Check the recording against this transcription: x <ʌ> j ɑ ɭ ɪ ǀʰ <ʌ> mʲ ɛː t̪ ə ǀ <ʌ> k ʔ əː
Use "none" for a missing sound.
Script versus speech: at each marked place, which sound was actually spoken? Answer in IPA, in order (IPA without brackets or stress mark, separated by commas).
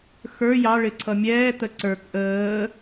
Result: ə˞, ʌ, ə˞